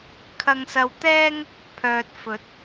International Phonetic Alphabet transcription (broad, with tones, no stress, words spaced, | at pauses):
kʰɐ˧ŋsɐ˧wt̪ɛː˥ŋ | pʰœː˨t̚ fɵ˨˥t̚